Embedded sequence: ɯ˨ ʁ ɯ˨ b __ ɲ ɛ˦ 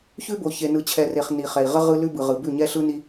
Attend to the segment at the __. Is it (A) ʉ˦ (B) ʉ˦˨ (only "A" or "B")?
B